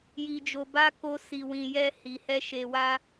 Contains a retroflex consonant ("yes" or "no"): no